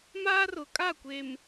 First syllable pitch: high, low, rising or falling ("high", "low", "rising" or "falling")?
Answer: high